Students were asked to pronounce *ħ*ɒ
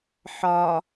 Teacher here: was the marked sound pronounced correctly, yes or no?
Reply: yes